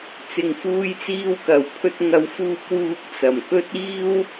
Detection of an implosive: absent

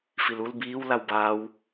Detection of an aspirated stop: absent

